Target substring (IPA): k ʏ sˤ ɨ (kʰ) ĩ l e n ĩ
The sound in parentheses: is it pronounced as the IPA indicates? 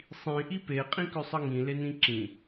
no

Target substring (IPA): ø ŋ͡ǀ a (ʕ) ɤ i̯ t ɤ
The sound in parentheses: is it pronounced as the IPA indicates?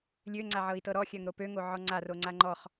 yes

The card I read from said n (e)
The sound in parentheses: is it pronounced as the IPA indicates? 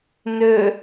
no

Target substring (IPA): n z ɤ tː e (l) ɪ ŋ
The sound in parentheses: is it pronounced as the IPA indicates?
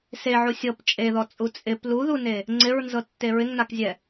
no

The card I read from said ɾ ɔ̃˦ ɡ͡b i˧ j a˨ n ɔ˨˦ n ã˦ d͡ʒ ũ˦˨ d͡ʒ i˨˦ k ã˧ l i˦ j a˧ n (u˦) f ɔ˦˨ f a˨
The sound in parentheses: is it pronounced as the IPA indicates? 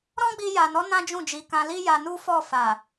yes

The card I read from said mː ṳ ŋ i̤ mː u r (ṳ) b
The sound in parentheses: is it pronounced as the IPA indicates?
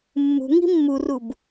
no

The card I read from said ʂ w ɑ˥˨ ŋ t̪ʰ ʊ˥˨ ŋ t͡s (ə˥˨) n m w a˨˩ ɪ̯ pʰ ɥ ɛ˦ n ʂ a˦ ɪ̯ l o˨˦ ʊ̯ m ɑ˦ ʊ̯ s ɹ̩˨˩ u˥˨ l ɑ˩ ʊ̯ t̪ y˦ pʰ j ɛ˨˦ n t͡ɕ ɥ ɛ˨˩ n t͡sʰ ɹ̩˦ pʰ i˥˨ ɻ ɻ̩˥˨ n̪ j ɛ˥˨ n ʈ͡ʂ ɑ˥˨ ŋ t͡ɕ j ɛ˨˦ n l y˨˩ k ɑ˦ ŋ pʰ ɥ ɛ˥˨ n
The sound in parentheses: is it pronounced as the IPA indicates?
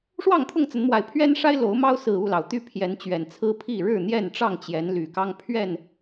no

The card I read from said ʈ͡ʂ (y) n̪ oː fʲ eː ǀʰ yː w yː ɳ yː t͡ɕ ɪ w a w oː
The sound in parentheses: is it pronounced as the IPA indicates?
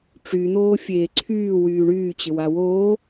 yes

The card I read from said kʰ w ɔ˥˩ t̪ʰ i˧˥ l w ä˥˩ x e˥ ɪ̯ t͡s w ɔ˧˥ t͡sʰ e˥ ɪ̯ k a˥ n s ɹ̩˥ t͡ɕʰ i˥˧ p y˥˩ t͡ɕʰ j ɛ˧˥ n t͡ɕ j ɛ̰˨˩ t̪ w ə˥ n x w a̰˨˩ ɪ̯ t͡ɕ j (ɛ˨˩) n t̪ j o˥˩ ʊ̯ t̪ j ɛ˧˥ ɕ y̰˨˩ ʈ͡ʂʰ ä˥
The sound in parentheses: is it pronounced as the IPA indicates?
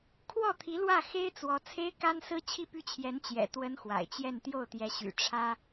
no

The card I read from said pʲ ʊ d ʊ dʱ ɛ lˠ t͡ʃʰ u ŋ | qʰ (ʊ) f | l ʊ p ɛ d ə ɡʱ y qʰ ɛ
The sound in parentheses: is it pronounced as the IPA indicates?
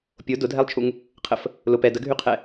no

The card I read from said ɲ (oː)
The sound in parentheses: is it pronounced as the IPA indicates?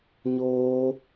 yes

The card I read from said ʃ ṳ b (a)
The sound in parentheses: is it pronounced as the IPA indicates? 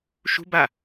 yes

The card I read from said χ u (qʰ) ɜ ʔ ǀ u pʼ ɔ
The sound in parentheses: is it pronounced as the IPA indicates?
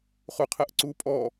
yes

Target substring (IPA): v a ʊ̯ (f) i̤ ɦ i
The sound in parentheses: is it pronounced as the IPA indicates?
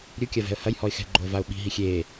no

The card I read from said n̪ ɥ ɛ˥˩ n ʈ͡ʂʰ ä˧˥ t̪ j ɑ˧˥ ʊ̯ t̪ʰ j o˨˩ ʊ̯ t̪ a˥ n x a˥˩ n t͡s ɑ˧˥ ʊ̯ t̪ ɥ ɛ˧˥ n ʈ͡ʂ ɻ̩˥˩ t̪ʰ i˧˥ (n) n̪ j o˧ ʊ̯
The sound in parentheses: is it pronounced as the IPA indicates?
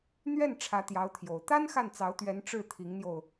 no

